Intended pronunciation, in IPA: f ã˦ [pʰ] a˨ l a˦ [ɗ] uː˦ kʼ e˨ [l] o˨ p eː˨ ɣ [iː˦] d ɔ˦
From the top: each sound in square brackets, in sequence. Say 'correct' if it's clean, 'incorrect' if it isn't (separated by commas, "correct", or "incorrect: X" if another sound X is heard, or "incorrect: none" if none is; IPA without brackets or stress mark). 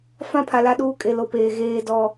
correct, correct, correct, incorrect: eː˦